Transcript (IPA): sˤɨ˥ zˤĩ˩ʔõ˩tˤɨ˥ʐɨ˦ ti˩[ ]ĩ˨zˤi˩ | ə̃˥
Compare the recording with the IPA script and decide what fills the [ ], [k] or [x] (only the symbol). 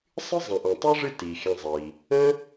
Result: x